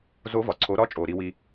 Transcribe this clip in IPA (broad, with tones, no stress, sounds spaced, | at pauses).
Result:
z o˧˥ v ɒ˩ ǀʰ o˩˧ ɾ ɒ˧ t͡ʃʼ o˩ ɾ i˧ w i˧